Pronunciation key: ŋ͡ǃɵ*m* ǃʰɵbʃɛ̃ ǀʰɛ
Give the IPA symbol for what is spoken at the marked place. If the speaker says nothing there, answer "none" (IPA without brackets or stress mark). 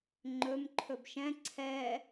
m